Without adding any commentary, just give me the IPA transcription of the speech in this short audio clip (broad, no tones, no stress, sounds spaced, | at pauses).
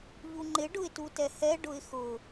ʎ u ŋ͡ǃ ɪ ɖ ʊ ɪ̯ t u t ɛ h ɛ ɖ ʊ ɪ̯ x ʊ